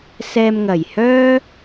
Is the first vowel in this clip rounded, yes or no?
no